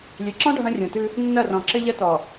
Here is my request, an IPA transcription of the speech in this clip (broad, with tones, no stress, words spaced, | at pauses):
lʲe˨ǁɔ̃˦ ɖʱɐ̃˦rʲõ˨tɨ˦ | nːɐ˦˨rɔ̃˨ ǁɘ˦ʎɐ˦tɔ˨